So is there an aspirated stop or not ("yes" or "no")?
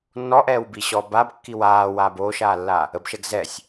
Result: no